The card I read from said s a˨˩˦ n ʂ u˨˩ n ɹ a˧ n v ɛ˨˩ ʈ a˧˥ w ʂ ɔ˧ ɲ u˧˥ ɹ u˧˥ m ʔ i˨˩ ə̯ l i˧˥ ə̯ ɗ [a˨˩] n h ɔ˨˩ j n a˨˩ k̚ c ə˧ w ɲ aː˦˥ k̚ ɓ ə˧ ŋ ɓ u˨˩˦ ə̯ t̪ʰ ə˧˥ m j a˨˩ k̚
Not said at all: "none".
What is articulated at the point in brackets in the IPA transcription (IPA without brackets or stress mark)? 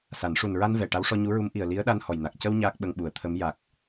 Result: a˧